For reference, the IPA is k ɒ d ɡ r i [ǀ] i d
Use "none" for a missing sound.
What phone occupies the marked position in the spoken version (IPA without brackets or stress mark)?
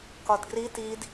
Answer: t